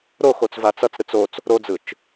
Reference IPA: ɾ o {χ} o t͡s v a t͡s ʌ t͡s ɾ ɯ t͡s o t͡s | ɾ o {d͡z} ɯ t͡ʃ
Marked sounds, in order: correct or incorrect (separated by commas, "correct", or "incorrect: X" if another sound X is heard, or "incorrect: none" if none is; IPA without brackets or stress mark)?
incorrect: x, correct